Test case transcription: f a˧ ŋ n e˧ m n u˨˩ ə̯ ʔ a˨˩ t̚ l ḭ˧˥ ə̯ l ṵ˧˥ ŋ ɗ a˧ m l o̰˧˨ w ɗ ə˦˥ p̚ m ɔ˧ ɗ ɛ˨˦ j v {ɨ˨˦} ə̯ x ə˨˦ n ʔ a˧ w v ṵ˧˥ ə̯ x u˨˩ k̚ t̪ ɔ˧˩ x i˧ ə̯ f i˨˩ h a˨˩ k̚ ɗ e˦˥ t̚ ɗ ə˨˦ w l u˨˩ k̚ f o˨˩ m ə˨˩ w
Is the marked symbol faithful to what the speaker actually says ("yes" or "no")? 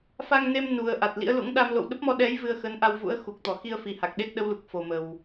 no